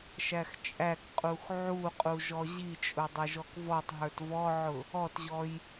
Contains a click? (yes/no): no